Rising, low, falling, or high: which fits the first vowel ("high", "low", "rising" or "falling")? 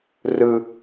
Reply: high